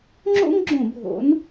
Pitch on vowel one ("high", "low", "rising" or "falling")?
high